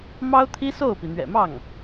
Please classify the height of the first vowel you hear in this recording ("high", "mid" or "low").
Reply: low